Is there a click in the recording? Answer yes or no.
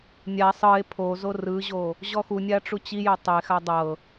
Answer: no